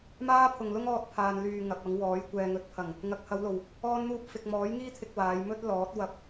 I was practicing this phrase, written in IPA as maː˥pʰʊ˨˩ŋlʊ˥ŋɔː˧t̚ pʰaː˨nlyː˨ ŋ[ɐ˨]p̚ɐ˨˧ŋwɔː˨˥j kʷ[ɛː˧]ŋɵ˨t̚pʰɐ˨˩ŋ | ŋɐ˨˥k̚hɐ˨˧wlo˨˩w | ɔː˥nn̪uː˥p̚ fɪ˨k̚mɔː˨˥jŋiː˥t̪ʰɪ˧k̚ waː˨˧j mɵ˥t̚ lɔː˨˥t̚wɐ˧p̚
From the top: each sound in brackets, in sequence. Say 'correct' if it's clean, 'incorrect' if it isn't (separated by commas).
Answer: correct, incorrect